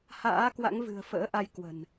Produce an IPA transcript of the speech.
h a̰ː˧˥ k w a̰˧˥ ŋ v ɨ̤˨˩ ə̯ f ə̰ː˧˥ ʔ a˧ j k w ə̤˨˩ n

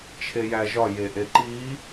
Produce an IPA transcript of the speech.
t͡ʃʰ e j æ ʒ ɒ j e ʔ e ǃ i

